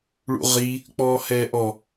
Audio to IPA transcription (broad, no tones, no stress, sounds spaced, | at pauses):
ɭ ṵ ʁ i | k͡p ɔː h ɛː ʔ ɔ